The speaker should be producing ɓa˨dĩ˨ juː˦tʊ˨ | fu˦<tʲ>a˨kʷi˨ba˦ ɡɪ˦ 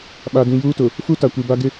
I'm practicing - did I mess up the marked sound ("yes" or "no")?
yes